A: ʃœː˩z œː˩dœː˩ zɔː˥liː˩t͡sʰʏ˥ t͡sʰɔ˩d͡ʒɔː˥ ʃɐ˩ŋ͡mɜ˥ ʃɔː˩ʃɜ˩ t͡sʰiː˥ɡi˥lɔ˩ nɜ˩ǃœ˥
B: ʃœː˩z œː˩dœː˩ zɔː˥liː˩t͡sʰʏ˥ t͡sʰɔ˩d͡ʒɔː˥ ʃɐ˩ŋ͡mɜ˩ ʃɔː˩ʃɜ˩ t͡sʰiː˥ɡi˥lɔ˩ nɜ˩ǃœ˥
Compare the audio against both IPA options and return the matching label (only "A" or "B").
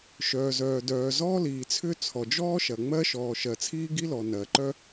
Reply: A